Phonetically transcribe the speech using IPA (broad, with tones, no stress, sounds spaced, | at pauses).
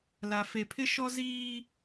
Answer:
l a˨ f e˨ pʰ ɪ˦ ʃ ɔ˦ z iː˦